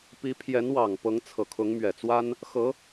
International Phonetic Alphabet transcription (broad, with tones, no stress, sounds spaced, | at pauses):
p i˧˥ pʰ j ɛ˧˥ n w ɑ˨˩ ŋ p ɤ˧˥ ŋ t͡sʰ ɤ˨˩ kʰ ʊ˧˥ ŋ m ɥ ɛ˨˩ t͡s w a˥ n | x ɤ˧˥